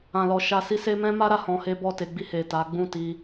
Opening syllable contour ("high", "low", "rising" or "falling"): low